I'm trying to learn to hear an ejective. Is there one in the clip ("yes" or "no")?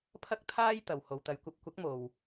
no